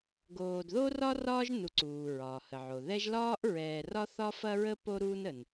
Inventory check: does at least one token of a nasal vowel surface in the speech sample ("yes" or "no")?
no